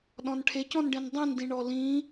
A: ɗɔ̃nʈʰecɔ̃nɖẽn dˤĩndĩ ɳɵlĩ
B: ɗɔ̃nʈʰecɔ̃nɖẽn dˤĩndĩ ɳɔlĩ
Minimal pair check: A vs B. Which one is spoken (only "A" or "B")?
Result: B